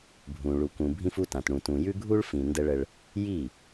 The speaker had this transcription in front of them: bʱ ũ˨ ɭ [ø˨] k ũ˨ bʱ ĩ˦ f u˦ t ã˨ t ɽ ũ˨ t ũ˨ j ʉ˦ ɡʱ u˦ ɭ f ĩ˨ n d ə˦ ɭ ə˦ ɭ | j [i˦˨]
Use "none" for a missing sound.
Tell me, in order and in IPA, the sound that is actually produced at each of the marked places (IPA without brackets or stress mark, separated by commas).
u˨, i˦˨